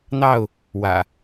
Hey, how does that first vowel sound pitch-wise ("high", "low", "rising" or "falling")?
falling